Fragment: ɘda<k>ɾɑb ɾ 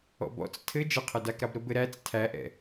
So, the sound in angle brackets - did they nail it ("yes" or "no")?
yes